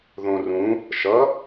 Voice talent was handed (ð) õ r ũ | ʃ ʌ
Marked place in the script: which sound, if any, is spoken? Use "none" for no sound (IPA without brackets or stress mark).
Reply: ð